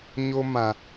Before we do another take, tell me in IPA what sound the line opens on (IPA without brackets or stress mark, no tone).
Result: ɲ